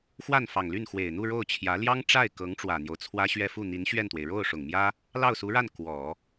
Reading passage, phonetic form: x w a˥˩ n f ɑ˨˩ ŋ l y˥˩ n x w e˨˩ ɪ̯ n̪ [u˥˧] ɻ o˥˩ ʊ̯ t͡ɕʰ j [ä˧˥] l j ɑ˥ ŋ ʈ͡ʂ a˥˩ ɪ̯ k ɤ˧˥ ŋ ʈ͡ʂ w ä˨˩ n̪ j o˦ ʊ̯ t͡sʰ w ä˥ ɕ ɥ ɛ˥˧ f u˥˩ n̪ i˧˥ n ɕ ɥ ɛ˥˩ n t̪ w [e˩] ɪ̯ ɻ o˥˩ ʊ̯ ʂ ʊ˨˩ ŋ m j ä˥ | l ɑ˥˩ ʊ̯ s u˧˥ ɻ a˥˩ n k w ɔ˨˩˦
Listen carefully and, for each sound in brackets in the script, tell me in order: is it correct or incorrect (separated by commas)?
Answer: correct, correct, correct